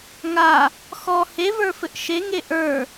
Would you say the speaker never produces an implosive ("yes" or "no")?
yes